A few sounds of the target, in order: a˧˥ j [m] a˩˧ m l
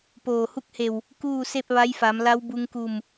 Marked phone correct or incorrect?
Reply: incorrect